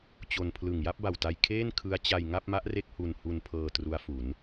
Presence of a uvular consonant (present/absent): absent